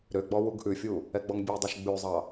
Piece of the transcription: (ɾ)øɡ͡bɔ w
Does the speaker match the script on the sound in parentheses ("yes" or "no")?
yes